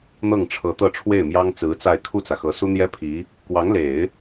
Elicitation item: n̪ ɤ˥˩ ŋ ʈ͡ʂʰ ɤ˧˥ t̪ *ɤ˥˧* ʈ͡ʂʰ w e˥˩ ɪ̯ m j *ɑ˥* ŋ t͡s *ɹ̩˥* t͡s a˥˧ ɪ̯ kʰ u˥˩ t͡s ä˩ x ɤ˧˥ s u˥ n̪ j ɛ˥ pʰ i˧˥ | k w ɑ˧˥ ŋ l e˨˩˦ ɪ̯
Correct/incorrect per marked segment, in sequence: correct, correct, incorrect

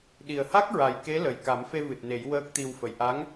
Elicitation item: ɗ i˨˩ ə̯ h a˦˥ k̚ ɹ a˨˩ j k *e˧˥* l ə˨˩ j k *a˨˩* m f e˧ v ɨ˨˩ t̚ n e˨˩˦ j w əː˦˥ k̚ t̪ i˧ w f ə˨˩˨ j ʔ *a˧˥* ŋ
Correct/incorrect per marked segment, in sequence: correct, incorrect, correct

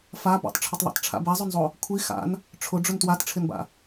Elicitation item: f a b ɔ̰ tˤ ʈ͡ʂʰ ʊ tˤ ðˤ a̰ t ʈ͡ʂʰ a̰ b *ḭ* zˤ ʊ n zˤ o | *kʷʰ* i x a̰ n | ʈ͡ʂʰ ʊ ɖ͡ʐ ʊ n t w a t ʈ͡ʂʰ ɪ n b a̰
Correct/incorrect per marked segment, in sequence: incorrect, correct

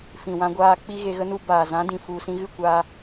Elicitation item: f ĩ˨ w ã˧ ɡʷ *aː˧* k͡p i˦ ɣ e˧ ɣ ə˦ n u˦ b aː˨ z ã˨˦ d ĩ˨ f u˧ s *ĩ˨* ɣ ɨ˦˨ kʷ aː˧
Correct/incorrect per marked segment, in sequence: correct, incorrect

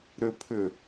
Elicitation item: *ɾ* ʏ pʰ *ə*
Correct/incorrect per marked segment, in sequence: correct, incorrect

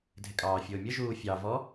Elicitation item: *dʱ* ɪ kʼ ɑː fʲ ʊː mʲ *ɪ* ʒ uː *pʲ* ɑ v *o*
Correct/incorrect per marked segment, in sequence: correct, incorrect, incorrect, incorrect

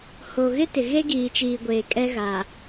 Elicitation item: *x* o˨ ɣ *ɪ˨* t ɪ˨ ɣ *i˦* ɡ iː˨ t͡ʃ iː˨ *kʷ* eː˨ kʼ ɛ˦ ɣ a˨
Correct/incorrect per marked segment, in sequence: incorrect, incorrect, incorrect, incorrect

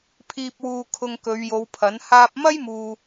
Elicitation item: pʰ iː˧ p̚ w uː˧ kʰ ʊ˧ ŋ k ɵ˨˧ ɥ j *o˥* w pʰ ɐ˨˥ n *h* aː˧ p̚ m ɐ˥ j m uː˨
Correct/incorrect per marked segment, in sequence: incorrect, correct

